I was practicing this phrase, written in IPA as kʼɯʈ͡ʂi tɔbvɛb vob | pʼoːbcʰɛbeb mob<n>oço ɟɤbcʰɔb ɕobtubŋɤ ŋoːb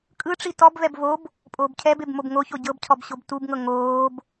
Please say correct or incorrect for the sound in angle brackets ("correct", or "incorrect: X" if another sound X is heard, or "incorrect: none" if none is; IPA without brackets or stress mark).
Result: incorrect: ŋ